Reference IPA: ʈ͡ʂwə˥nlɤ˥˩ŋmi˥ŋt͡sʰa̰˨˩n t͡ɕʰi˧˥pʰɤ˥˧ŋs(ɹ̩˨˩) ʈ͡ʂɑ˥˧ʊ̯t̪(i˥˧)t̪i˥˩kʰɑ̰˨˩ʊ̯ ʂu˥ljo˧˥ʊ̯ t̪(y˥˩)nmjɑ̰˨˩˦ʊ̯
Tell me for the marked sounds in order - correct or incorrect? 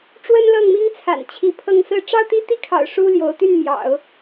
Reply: incorrect: ɹ̩˥˧, correct, correct

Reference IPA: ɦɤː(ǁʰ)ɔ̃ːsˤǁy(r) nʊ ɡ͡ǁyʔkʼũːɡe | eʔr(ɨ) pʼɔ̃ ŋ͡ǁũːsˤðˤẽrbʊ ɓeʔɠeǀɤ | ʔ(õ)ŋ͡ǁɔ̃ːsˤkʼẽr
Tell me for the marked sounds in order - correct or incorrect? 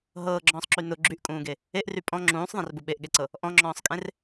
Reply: incorrect: ɡ͡ǁ, incorrect: none, incorrect: y, incorrect: ɔ̃

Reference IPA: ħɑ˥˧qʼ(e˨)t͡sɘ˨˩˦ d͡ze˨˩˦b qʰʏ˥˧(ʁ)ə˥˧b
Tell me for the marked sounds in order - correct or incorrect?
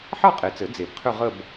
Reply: correct, correct

